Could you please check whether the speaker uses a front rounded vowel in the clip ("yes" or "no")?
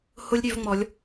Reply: yes